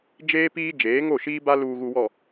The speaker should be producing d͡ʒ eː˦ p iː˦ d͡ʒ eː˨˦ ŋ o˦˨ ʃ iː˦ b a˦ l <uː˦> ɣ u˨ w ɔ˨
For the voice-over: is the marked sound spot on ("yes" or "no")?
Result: no